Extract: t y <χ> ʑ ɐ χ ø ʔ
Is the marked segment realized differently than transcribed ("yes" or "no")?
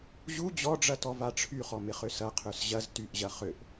yes